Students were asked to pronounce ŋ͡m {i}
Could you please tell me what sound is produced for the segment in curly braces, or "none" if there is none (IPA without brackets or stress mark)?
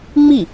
i